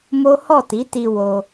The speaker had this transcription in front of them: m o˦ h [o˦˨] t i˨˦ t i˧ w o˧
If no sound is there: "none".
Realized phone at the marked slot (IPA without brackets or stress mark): ɔ˦˨